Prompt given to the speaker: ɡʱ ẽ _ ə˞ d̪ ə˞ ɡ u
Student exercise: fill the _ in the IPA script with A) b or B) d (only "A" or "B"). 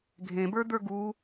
A